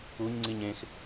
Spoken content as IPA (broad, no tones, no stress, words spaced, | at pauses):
uɲŋ͡ǀiɲ ẽx